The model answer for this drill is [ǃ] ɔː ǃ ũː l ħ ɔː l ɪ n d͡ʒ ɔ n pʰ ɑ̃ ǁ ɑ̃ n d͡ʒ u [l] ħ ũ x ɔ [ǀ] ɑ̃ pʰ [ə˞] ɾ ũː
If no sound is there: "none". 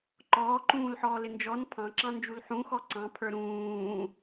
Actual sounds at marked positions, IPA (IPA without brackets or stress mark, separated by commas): ǃ, l, ǀ, ə˞